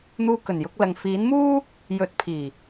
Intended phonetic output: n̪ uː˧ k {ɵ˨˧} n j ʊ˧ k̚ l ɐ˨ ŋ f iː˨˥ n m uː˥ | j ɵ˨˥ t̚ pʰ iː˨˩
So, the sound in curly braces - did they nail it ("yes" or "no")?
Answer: no